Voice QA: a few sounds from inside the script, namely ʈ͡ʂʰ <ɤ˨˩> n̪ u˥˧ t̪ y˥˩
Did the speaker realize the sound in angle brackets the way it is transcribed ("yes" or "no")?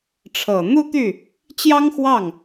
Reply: yes